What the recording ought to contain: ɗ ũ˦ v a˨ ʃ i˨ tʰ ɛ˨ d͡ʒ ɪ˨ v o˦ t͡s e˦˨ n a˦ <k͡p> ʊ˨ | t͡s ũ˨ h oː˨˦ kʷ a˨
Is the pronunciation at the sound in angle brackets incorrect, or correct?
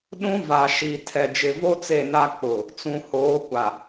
correct